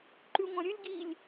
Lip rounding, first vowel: rounded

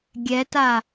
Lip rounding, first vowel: unrounded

